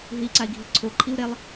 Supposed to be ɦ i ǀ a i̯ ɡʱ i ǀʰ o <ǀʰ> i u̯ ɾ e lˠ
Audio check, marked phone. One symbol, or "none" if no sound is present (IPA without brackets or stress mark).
ǃʰ